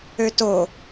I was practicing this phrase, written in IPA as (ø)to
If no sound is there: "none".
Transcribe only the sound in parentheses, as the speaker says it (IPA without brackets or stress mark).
ø